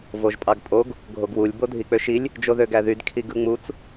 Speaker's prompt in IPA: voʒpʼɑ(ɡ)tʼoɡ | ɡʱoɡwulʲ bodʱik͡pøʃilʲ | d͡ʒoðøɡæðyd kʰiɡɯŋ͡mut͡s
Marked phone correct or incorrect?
correct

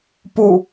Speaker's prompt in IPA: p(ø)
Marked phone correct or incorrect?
incorrect: u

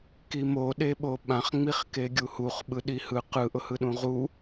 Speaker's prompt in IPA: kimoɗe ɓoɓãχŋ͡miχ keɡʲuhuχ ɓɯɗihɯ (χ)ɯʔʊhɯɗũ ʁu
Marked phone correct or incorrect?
incorrect: q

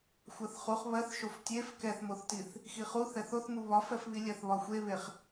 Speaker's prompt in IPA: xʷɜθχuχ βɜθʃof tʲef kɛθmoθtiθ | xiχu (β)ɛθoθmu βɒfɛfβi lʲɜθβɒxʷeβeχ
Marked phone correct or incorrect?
incorrect: θ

